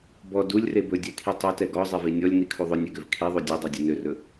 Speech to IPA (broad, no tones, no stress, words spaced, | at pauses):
bɔ dulʲre bɵdʲɛkʰi tˤɵtɛ ɡɔzˤevi nʲɔlʲnikʰu ðˤɵnʲɛɡøv kʰiðˤu dʲødˤɛdʲɵ nørɵ